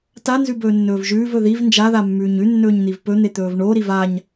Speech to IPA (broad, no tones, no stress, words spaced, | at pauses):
tanzʉ bɵːnːɵːvʒʉːvɵ ðiv nd͡ʒaða mːʉːɲʉnːɵːɲ n̪ivpɵn̪e t̪ɵːvɳoɾiv aɲ